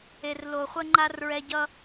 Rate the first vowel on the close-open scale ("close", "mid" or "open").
mid